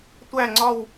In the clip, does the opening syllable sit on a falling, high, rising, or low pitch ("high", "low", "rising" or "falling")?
falling